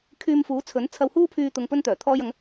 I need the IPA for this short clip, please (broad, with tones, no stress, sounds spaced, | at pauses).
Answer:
kʰ yː˧ m f uː˨˥ t͡sʰ ɵ˨˥ n t͡sʰ ɐ˨ w h uː˧ pʰ yː˨ t̪ ʊ˨ ŋ p ɵ˧ n t̪ œː˨˩ t̪ʰ ɔː˧ j ɐ˨˧ ŋ